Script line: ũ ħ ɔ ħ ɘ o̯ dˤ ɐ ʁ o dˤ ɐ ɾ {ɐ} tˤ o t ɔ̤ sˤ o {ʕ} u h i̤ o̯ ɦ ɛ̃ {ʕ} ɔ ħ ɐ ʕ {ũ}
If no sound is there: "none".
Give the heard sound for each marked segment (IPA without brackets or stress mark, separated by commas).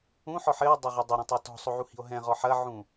ɐ̃, ʕ, ʁ, ũ